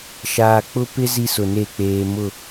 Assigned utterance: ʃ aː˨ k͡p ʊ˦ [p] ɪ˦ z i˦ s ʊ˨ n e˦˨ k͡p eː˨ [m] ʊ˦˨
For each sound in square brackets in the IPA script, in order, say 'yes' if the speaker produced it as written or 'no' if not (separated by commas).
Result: yes, yes